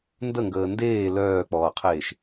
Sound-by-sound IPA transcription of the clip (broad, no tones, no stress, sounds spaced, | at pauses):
n d ə ŋ ɡ əː n d eː l œː k͡p ɔː qʰ eː ʃ